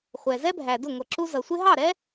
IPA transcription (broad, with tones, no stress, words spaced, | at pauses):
χʷɛ˩zɛ˥bʱæ˩dʊ˥˩ ŋʷʌ˩ǁu˧ zʌ˩sʷɪ˥ ɦɑ˥˩ɾɛ˥